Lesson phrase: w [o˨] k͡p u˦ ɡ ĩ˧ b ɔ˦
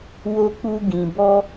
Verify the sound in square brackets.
incorrect: o˦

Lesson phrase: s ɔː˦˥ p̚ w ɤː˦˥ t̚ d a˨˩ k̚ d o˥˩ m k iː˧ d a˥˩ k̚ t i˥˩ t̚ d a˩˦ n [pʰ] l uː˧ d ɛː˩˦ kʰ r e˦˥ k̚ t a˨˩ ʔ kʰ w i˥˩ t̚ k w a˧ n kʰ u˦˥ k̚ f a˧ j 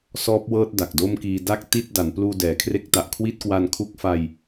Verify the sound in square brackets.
incorrect: p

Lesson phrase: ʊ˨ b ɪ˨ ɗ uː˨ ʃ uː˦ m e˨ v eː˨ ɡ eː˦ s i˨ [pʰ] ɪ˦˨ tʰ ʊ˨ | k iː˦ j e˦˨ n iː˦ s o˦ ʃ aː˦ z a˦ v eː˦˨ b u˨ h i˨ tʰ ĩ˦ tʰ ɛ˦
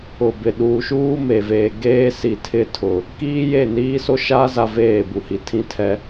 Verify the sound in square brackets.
incorrect: tʰ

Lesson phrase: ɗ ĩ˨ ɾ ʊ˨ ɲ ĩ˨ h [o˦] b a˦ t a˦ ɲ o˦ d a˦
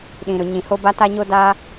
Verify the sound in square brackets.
correct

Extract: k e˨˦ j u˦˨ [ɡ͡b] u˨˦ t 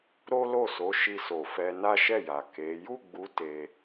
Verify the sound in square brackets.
correct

